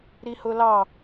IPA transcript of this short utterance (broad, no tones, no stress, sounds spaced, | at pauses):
ɾ i h ʊ l ɑ